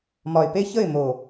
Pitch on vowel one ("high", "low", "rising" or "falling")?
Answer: low